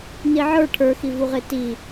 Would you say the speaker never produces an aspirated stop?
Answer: no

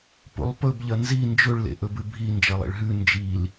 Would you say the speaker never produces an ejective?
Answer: yes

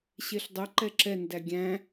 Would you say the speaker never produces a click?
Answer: no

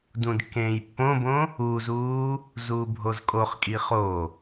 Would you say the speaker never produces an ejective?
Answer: no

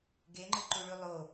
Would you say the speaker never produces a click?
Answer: no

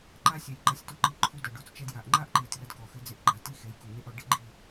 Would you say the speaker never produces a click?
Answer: no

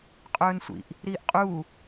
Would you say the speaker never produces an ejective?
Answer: no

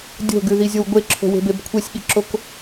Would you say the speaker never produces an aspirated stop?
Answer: no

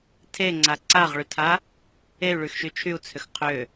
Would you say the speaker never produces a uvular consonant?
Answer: no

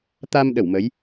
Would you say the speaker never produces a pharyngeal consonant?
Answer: yes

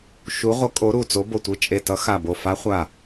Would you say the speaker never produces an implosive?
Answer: yes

